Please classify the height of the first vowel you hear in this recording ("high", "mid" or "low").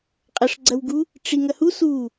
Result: low